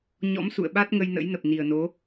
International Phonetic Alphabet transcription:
ɲ ɔ̰˧˥ m s ṵ˧˨ ə̯ ɓ a˦˥ t̚ ŋ ə˧ j n ə̰˧˥ j n ə˨˩ p̚ n i˨˩ ə̯ n o˨˦

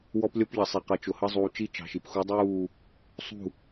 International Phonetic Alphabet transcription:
w ɔ˦ p lʲ ɔ˦ p ʎ ʌ˨ sˤ ɛ˨ q ʌ˨ t͡ʃ ʊ˨ h ʌ˦ zˤ uː˨ t͡ʃ i˦ t͡ʃ ɑ̤˨ ʃ i˨ p x u˨˦ dˤ uː˦˨ | sˤ ṳ˦˨

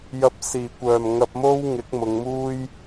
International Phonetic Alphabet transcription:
j ɐ˨˥ p̚ s iː˨˩ kʷ œː˨˩ m ŋ ɐ˧ p̚ m o˥ w ŋ ɪ˨˥ k̚ m ʊ˨˧ ŋ m uː˥ j

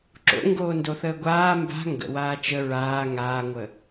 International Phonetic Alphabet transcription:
ǁ o̰ ŋ ɡ oː n d o θ əː ɡʷ aː m b a̤ ŋ ɡ ə̰ w aː t͡ʃ ə ɹ aː ŋ aː ŋʷ ə

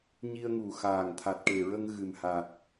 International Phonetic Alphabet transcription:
ɲ i˧ ə̯ ŋ u˨˩ x aː˨˩ ŋ t̪ʰ a˨˩ t̚ ʈ e˨˩ ɹ ə˧ ŋ ɣ ɨ˨˩ m h a˨˩ t̚

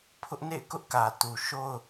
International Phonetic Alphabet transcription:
pʰ ʊ˦ ʔ n ḛ˦˨ ɪ̯ k ʊ˦ ʔ k ä˨ t u˨ ʃ o˦ ʊ̯

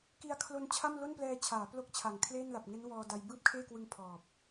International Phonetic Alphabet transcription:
k i˧ a̯ kʰ l o˧ n t͡ɕʰ a˥˩ m l o˥˩ n p l ɛː˧ t͡ɕʰ aː˩˦ p l o˥˩ k̚ t͡ɕʰ a˨˩ ŋ kʰ l eː˥˩ n l a˨˩ p̚ ŋ e˦˥ n w ɔː˧ d a˧ j b ɯː˥˩ p̚ kʰ eː˥˩ k w ɯ˧ ŋ pʰ ɔː˨˩ p̚

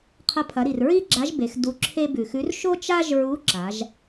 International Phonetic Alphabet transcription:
qʰ ɐ˧ pʰ ɐ˩˧ ɾ i˩ r ɹ i˥ ɡ͡ǁ a˧˥ ʒ b e˩˧ x d u˧ ǁʰ e˥ b ʉ˩ x ʉ˧˥ r ʃ o˥ t͡ʃ a˥ ʒ ɹ u˧˥ ǁ a˩˧ ʒ

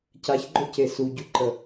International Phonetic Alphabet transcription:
c a ç ɡ͡ǃ ɵ c e s u ɟ u ǃ ə

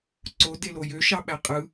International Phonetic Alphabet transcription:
ǀ o d e l o j ø ʃ ɑ ɓ æ qʼ ɯ

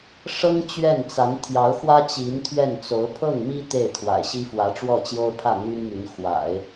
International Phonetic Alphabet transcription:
ʂ ɤ˥ ŋ t͡ɕ ɥ ɛ˥˩ n t͡s a˧˥ n t̪ʰ j ɑ˧˥ ʊ̯ x w ä˥ t͡ɕ i˧˥ n t̪ʰ ɥ ɛ˥˩ n t͡s o˧˥ ʊ̯ pʰ ɤ˥˩ ŋ m i˥ t̪ e˥˩ ɪ̯ t̪ʰ w a̰˨˩ ɪ̯ ɕ i˥ f w ä˧˥ ʈ͡ʂ w ɔ˥˩ t͡ɕ j o˥ ʊ̯ pʰ ä˥˩ n̪ y˥ n m y˧˥ n x w a̰˨˩˦ ɪ̯

